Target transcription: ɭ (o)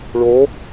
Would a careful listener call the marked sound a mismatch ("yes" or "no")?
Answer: no